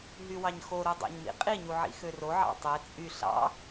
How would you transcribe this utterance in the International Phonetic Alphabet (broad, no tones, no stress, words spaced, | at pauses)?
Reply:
ɦywɑɲxoɾu dˤɑ̰ɲmḭqʼiɲu ʕḭxøroʕɑ̰ tˤe t͡sʼy ɬɑ̰